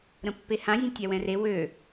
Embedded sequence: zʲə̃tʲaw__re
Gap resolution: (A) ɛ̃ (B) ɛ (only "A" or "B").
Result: A